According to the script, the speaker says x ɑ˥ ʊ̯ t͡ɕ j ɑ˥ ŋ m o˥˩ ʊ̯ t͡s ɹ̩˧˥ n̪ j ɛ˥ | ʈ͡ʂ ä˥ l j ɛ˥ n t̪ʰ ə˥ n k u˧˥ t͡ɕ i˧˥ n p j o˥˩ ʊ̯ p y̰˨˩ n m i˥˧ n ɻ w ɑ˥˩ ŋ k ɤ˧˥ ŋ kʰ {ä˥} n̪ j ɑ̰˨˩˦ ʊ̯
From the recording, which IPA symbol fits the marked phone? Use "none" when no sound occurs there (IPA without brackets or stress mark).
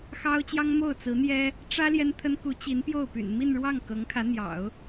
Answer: ä˧˥